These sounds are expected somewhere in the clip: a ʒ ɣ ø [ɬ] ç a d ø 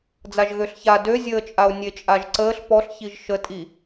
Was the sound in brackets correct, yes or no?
yes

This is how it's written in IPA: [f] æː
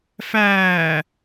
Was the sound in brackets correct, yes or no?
yes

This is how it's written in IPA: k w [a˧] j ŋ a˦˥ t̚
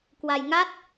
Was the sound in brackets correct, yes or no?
yes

